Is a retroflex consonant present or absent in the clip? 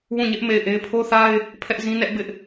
absent